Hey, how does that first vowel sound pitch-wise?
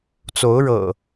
rising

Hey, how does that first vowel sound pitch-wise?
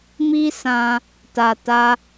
high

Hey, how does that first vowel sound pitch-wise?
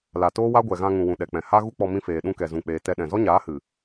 low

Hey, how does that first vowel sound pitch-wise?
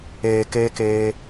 low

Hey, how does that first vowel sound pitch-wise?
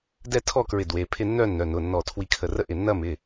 falling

